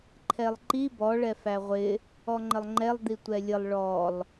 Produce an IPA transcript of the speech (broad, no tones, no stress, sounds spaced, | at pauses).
ǃʰ ɛ lˠ ǃ i b ɔ ɭ ɛ f æ ʁʷ ɪ | ɔ ŋ͡ǃ ə lˠ ŋ͡ǃ ɛ lˠ d̪ i tʷ ɛ lʲ ə lˠ ɭ ɔ lˠ